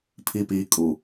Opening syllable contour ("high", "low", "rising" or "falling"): low